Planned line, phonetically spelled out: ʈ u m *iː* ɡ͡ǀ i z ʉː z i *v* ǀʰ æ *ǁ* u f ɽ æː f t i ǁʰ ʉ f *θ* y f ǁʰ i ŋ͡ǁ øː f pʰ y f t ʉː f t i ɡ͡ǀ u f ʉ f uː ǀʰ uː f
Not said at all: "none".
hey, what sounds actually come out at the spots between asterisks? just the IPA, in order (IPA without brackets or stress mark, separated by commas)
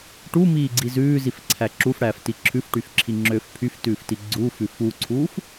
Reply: iː, f, ǁ, ʈ